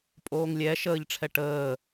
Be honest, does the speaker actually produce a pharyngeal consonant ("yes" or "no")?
no